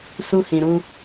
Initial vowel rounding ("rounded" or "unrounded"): rounded